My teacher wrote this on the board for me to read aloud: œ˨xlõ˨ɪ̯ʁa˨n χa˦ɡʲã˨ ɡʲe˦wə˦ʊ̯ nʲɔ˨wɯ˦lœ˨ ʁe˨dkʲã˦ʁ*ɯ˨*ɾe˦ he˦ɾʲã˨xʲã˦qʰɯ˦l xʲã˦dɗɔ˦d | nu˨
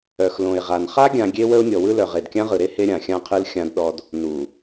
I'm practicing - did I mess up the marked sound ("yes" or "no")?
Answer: no